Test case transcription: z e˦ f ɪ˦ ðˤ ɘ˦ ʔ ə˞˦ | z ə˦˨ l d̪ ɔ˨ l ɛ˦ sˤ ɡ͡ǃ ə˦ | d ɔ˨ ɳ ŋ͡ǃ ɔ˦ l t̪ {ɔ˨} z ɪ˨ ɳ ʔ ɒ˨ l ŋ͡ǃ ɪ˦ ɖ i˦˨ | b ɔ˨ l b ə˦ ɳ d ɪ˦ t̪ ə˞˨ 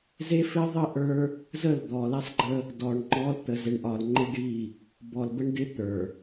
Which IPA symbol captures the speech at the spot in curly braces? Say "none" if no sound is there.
ə˨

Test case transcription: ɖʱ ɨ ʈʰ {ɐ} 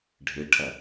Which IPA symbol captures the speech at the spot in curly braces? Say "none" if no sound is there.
ɐ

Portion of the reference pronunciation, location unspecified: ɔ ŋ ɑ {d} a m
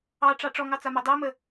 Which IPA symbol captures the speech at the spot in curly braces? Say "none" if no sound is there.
t͡s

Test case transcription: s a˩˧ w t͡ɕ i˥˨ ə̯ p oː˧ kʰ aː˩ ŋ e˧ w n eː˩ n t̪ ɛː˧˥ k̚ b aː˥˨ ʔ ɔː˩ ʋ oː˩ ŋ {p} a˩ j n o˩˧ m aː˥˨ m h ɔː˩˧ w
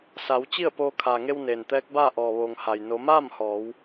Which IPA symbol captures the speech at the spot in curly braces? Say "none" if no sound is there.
h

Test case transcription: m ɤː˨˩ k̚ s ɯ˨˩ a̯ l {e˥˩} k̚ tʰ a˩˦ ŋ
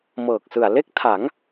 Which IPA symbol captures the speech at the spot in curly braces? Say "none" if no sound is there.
e˥˩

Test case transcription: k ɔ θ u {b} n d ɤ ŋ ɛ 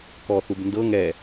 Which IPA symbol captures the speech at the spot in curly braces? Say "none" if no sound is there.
b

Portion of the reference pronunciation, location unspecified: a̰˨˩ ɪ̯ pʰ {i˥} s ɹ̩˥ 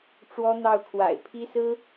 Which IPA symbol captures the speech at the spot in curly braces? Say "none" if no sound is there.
i˥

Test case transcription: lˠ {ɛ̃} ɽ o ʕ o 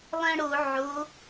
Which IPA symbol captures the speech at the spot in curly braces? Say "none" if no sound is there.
ɛ̃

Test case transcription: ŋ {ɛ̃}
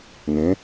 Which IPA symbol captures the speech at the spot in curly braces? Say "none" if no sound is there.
ẽ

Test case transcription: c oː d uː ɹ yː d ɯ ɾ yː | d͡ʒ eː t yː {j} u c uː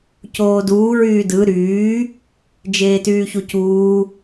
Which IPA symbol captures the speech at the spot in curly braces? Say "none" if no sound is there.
ç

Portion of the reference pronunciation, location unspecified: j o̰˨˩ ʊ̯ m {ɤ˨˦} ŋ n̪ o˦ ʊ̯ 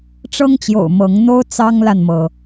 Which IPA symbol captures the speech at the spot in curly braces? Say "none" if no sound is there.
ɤ˨˦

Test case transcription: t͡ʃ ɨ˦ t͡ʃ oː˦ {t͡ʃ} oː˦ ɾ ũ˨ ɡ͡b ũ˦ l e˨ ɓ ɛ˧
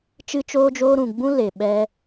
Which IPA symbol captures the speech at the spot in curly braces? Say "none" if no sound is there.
d͡ʒ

